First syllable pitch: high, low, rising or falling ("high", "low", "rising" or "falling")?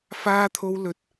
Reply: high